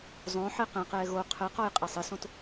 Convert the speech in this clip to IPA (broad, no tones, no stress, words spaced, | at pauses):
zˤõ ħeqɛ̃qɛː ɣo qʰɘqɔj qʼesˤɪsõt